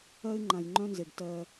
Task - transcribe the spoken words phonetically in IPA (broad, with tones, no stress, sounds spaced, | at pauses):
ɜ˦ ɪ̯ ŋ͡ǃ ã˨ j ŋ͡ǃ œ̃˦ n z e˨ ɖ t ɜ˦